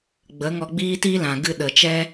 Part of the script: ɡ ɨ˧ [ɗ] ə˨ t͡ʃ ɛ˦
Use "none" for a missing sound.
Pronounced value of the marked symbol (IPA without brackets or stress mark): ɗ